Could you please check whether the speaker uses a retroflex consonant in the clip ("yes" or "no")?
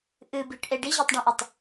yes